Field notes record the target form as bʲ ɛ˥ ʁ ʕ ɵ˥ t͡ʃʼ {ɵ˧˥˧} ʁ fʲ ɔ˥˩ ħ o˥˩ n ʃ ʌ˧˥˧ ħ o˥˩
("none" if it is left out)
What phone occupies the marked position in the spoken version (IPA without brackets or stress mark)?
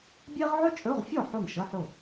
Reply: ɵ˧˥˧